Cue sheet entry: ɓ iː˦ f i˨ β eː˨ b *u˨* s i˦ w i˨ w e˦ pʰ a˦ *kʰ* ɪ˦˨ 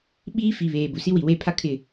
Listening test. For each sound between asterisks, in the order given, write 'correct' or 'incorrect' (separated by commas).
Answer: correct, correct